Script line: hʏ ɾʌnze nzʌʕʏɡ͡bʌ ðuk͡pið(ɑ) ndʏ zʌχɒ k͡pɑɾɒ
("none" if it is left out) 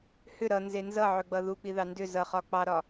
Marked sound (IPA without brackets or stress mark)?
ɑ